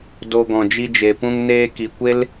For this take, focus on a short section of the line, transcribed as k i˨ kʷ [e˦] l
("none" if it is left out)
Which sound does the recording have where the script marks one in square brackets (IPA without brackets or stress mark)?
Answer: e˦